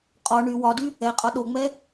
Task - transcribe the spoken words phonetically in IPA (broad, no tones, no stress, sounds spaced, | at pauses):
qʼ ɔ ɳ y w ɒ d y | ɛ qʼ ɒ ɗ o ŋ͡m ɛ